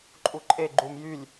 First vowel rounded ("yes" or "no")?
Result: yes